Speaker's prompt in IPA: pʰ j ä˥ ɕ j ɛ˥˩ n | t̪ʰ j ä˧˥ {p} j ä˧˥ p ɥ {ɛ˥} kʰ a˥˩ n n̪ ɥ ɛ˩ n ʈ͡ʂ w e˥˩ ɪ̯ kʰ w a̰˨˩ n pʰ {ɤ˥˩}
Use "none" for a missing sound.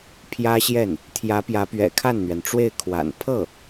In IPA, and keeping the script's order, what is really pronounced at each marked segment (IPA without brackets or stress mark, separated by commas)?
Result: p, ɛ̰˨˩, ɤ˥˩